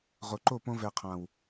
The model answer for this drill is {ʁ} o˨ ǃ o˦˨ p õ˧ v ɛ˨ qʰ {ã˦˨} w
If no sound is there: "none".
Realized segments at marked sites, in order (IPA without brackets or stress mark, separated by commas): ʁ, ã˨